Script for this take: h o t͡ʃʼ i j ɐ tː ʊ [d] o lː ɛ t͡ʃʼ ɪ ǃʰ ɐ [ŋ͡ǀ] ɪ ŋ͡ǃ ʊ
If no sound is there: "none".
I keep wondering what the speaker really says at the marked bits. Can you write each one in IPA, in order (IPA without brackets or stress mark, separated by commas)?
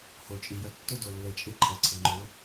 d, ǀʰ